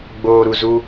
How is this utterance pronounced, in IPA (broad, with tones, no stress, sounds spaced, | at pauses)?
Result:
ɡ͡b oː˨ ɾ u˨ z u˦